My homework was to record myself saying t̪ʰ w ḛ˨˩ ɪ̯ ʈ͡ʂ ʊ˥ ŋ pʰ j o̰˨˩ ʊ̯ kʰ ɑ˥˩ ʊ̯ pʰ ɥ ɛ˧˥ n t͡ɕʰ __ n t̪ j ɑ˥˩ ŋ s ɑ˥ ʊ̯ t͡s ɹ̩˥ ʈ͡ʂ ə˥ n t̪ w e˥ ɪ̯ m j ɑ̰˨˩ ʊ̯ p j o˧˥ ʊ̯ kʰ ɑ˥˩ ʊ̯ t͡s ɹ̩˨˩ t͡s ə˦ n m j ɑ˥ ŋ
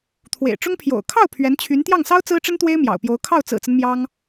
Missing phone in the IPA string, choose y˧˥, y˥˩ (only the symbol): y˧˥